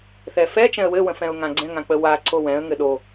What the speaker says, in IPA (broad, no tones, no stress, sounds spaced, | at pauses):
θ ɛ f ɛ t͡ʃ ɛ̃ ə̯ w ɘ w ə̃ f ɛ̃ ʊ̯ ŋ ã ɡ͡ǀ ɛ̃ ŋ ã k͡p ə w a ǀ o w ɛ̃ ə̯ ŋ ɘ ɗ o